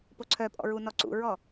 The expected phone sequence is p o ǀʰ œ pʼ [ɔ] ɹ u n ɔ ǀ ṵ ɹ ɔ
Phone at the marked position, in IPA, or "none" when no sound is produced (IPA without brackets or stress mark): ɔ̰